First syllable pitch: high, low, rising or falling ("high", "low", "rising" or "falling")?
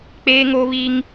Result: high